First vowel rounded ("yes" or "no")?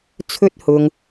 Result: yes